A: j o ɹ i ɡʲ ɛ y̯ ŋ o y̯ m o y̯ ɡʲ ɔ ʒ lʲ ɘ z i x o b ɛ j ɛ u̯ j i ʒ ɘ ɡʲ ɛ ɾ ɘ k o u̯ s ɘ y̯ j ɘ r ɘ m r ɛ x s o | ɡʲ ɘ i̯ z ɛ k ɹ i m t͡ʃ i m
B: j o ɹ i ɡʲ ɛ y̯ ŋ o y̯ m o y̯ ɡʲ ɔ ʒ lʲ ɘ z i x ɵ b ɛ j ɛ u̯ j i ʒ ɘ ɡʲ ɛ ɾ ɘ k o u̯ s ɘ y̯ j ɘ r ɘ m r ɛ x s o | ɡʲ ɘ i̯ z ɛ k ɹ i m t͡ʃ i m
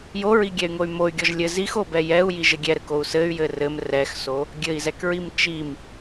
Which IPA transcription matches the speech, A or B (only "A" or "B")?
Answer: A